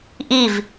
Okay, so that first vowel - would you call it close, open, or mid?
close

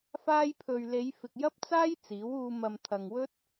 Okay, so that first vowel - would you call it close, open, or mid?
open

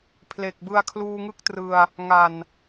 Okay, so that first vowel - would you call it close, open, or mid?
mid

